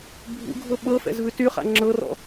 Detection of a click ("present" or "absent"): present